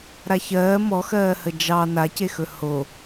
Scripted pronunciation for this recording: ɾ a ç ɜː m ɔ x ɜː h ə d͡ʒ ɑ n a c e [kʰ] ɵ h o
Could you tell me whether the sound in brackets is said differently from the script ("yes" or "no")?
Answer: yes